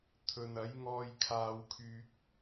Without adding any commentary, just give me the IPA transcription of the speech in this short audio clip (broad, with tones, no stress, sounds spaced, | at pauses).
t̪ʰ ɵ˨ n ɐ˨˥ j ŋ ɔː˧ j kʰ aː˥ w kʰ yː˥ k̚